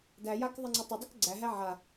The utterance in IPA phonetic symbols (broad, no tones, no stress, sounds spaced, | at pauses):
d æ j a k ðˤ ə ŋ͡ǀ ə tˤ ə dˤ ə k ɡ͡ǀ æ ɦ æ ʕ a